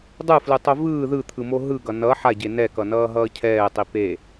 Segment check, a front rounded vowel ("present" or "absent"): absent